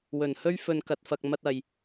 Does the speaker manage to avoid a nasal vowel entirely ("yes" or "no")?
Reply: yes